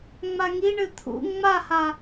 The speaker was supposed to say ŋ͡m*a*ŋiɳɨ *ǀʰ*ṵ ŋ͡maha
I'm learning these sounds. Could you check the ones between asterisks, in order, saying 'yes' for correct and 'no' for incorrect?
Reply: yes, no

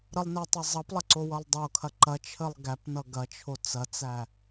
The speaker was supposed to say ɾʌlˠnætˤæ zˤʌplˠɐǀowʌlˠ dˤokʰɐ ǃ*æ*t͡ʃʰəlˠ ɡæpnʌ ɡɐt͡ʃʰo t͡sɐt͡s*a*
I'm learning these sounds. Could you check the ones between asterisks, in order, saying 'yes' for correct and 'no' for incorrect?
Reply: no, no

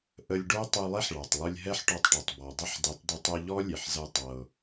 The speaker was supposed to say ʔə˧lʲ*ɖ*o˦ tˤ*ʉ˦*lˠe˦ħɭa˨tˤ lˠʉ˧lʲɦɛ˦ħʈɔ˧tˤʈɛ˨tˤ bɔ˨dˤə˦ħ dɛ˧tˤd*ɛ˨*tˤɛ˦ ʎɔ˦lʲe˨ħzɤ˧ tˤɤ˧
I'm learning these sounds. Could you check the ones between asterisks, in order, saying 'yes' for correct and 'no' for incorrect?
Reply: yes, no, no

